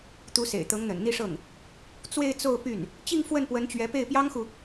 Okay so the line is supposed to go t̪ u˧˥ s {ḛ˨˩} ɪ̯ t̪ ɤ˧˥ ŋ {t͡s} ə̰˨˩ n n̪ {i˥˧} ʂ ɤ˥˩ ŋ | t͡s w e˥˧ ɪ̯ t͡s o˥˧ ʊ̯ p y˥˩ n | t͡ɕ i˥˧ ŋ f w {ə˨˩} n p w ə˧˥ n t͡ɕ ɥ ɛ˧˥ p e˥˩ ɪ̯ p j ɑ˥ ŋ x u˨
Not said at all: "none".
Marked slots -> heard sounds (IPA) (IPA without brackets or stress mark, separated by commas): ḛ˨˩, n̪, i˥˧, ə˥˩